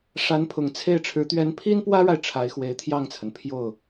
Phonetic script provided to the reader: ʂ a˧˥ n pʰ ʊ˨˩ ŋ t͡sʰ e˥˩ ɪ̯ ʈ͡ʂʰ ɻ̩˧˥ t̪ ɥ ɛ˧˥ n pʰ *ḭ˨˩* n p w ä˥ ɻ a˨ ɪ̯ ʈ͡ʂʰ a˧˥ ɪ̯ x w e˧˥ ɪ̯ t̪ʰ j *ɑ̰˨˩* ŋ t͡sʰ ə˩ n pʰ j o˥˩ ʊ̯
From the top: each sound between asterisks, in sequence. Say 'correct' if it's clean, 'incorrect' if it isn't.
incorrect: i˥, incorrect: ɑ˥˩

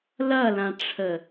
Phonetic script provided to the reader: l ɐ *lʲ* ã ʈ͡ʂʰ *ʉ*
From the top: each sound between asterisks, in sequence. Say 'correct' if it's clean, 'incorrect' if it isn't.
incorrect: l, incorrect: ə

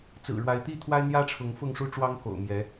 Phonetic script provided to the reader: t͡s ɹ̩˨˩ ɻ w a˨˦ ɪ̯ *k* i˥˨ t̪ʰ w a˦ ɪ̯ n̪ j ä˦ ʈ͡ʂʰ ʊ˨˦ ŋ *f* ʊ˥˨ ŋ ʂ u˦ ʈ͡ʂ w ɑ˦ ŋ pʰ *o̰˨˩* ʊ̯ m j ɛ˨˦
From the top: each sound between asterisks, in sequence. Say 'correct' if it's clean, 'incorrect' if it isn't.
incorrect: t̪, correct, correct

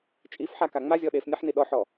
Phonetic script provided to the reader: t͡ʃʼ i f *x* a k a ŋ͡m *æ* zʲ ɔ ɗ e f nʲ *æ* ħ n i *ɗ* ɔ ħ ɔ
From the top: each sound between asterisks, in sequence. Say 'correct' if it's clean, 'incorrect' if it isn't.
incorrect: ħ, incorrect: a, incorrect: a, correct

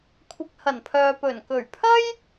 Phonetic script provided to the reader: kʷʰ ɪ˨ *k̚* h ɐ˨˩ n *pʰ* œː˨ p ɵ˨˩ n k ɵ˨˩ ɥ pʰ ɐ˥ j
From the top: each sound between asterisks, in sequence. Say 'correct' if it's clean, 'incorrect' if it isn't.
correct, correct

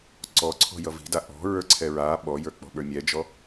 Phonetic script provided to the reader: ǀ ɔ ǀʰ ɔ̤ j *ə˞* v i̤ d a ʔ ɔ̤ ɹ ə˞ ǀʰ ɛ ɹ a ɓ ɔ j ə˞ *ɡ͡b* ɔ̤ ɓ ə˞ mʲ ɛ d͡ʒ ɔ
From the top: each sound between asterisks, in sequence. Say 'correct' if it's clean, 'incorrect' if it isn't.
incorrect: ʌ, incorrect: k͡p

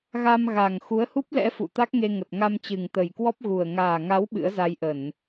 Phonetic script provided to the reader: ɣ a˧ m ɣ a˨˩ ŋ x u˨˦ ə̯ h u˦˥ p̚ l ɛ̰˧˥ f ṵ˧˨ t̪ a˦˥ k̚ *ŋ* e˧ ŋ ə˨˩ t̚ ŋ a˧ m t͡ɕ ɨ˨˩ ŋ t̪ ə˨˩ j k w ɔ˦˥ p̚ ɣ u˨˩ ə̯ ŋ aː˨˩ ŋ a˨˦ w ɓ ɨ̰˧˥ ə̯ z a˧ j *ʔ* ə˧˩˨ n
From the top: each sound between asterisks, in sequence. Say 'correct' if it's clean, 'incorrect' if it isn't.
correct, correct

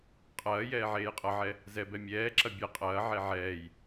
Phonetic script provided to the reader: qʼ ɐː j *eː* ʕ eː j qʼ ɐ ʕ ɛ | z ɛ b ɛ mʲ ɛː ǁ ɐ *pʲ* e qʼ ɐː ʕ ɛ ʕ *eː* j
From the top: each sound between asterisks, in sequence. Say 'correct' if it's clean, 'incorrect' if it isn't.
incorrect: ɛː, incorrect: bʲ, incorrect: ɛː

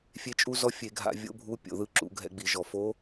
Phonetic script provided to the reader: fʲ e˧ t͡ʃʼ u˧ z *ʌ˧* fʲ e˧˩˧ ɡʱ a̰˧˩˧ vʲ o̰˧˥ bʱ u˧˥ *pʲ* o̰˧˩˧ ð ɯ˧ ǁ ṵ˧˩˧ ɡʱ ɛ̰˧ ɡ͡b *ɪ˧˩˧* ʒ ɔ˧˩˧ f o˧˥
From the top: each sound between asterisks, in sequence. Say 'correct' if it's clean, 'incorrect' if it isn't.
incorrect: ɔ˧, correct, incorrect: i˧˩˧

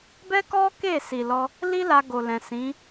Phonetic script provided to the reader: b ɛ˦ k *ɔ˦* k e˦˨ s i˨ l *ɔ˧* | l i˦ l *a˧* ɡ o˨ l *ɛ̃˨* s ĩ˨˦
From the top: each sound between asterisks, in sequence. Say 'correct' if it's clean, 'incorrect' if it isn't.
correct, correct, correct, correct

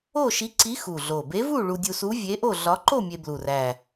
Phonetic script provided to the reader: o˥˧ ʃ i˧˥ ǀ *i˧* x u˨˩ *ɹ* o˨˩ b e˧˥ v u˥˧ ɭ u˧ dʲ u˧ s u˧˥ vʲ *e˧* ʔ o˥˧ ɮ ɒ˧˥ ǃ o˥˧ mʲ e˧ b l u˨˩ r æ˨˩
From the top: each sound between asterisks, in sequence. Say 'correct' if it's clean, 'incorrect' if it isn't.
incorrect: i˧˥, incorrect: ɮ, incorrect: e˧˥

